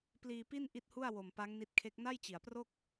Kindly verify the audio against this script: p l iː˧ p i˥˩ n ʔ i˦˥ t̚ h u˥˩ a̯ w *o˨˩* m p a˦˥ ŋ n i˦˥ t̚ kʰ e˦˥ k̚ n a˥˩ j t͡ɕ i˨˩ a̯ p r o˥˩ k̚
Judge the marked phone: correct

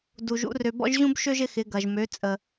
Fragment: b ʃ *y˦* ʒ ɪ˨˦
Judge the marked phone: incorrect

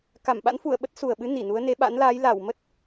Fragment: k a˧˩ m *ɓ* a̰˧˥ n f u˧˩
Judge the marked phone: correct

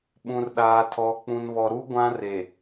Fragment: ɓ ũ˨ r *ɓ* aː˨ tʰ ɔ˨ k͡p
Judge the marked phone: incorrect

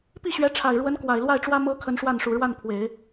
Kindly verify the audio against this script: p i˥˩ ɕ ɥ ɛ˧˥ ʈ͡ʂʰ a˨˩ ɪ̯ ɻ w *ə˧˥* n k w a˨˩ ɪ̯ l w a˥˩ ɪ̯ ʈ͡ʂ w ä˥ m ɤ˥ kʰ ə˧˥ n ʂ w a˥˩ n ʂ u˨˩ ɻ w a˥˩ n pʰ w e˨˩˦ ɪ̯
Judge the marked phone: correct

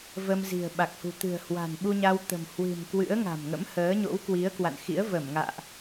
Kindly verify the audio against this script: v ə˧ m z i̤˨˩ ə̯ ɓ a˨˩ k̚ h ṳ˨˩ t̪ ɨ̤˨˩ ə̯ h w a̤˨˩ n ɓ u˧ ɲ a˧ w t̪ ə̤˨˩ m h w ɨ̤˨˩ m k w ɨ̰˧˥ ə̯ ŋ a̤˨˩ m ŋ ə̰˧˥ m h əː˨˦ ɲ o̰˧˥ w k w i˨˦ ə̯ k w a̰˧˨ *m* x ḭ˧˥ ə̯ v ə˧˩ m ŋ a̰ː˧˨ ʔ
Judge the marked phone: incorrect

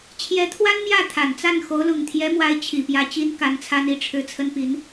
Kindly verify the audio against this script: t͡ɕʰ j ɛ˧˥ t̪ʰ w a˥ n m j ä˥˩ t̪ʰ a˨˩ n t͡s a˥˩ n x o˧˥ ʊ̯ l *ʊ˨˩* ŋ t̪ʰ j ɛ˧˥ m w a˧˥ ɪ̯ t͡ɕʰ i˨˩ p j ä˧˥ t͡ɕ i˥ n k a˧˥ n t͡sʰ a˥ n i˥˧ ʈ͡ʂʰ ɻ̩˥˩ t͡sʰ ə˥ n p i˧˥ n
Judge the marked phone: correct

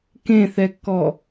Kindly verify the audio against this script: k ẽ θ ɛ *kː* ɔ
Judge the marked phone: correct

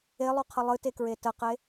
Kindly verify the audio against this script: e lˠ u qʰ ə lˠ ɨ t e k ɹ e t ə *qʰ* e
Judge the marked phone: incorrect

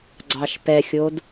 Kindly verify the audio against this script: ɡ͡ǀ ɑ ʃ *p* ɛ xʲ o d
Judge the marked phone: correct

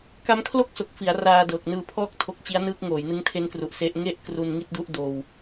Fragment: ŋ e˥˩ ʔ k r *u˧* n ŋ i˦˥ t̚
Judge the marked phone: incorrect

